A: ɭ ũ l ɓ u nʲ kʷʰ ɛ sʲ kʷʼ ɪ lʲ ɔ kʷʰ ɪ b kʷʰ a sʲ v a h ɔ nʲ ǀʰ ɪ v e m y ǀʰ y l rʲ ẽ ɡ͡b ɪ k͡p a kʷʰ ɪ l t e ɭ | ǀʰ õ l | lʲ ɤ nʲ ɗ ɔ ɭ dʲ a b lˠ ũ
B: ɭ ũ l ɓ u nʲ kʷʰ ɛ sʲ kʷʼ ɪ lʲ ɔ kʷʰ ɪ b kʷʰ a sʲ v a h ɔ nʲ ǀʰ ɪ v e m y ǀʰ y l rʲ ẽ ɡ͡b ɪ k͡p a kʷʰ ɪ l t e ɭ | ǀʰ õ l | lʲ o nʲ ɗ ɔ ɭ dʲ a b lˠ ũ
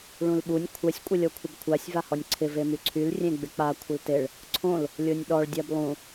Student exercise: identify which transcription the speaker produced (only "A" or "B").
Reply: B